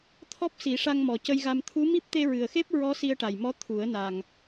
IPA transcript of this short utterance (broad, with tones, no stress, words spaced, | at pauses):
t̪ʰɔ˦˥p̚si˨˩˦ ʂa˧ŋmɔ˨˩cə˧jɣa˧m t̪ʰu˧˥mi˦˥p̚ t̪e˧ɹɨ˨˩ə̯ xe˦˥p̚ɹɔ˧˥ si˧ə̯ʈa˨˩jmɔ˧˥ t̪ʰu˨˩˦ə̯na˨˩ŋ